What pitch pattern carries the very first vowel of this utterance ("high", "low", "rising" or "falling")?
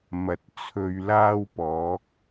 low